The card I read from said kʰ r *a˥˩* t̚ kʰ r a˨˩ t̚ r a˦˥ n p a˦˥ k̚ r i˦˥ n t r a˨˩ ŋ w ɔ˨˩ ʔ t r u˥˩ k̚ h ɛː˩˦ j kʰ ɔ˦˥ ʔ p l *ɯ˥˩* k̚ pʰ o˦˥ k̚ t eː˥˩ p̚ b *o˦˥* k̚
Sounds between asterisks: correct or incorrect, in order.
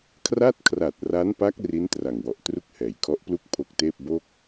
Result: correct, incorrect: u˥˩, incorrect: o˥˩

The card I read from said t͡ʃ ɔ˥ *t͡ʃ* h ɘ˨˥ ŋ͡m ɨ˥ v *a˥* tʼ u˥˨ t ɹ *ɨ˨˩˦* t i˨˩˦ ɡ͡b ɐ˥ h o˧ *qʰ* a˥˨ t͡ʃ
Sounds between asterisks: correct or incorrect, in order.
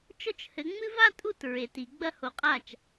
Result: correct, correct, incorrect: e˨˩˦, incorrect: qʼ

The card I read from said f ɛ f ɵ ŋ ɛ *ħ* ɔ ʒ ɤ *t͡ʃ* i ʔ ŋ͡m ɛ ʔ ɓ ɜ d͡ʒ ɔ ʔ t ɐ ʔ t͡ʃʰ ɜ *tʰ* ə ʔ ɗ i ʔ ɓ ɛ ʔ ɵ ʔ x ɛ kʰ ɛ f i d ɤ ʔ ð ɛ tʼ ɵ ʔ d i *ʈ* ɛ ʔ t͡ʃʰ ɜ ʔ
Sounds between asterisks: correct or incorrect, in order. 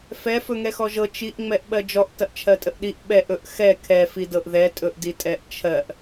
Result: incorrect: x, correct, incorrect: tʼ, incorrect: tʼ

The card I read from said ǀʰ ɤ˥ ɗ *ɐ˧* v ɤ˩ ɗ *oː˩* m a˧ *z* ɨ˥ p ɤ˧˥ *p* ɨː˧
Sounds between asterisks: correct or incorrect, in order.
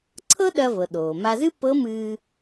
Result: correct, correct, correct, incorrect: m

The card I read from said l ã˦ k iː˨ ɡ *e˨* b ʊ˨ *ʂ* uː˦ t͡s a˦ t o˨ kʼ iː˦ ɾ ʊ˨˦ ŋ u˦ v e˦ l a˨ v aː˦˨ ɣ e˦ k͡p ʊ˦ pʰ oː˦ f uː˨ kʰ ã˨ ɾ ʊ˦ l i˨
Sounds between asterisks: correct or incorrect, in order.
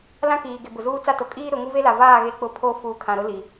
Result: correct, incorrect: z

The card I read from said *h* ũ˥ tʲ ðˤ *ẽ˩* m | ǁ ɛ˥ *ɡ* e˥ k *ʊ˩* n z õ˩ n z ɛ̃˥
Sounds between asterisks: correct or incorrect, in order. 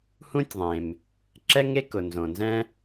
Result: correct, correct, incorrect: ŋ, correct

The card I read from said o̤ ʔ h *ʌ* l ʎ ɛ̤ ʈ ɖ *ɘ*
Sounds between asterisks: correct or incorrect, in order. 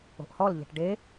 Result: incorrect: ɔ, incorrect: e

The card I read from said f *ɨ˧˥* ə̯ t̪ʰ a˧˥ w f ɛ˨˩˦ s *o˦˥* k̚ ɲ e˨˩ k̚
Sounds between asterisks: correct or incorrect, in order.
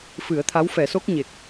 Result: incorrect: ɨ˨˩˦, correct

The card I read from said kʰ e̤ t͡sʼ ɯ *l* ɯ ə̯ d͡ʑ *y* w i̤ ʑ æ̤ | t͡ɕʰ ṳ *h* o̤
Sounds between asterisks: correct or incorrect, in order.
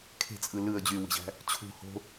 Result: correct, correct, correct

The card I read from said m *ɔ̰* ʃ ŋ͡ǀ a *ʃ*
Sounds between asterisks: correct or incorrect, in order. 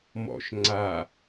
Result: correct, incorrect: none

